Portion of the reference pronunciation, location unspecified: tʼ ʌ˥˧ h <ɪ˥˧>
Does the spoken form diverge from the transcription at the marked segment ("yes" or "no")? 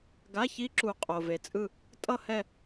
yes